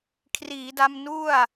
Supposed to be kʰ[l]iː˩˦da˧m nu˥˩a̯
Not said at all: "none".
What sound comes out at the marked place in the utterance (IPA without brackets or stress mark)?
r